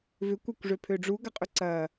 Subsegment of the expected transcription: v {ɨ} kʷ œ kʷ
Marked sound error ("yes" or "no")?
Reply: yes